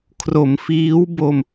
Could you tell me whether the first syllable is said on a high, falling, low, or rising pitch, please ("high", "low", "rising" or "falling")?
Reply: low